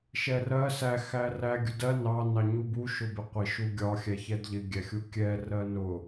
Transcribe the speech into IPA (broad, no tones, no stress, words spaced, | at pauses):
ʃɛrɜ sæ xæræ ɡʲʊdɜ nɑ nɑɲubu ʃʊbɪqʷɪ ʃuɡʲɒ xʲæçɛdʎɪ ɡʲæxʲukʲɛ rɜnʊ